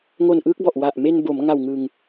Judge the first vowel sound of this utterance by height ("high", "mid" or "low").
mid